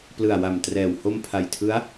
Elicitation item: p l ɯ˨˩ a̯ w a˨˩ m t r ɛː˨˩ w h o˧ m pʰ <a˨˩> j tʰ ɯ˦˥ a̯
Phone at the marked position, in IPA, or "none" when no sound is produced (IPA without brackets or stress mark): a˨˩